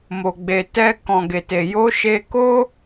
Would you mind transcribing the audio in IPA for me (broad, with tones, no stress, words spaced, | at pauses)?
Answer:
mo˨ɡ͡be˨tɛ˧ kɔ̃˨ɡe˨te˨ jo˨˦ ʃe˧ko˦